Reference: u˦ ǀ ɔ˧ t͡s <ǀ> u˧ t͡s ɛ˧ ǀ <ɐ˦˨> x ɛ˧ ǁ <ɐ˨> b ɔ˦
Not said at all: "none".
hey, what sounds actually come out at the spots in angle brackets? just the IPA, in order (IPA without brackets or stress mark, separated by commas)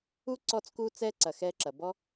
k, ɐ˨, ɐ˨